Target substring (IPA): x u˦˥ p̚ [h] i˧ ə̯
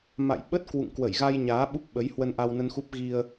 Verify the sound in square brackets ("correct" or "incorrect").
incorrect